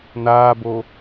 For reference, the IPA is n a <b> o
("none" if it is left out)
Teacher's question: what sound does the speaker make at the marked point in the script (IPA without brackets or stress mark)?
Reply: b